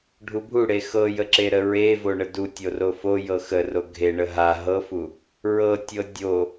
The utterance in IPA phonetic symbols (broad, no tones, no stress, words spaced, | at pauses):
ɖʱubʱuɽe xɤjə ǁeɾəɹevo ɳədutʲo rofojɤ xəro ɡʱeɳə ɦa ɦɤfu | ɹɤtʲɤ dʲo